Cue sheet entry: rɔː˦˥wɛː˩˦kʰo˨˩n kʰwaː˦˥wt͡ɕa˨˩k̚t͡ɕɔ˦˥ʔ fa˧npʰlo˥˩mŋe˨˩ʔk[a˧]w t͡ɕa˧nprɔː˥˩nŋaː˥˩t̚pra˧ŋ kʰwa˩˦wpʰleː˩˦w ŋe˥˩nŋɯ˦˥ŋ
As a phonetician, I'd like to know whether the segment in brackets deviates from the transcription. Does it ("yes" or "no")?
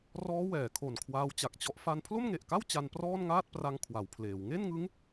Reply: yes